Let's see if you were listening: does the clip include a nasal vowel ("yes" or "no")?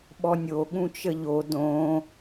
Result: yes